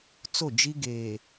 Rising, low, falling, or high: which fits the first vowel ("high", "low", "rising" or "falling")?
falling